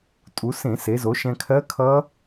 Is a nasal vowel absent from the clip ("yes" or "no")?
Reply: no